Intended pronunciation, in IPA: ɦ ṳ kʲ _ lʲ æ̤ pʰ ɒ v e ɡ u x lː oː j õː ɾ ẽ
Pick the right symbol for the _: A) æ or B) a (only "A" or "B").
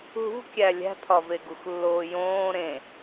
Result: A